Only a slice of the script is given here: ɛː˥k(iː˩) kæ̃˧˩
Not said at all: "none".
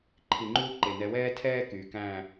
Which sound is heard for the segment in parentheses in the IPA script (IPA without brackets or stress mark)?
yː˩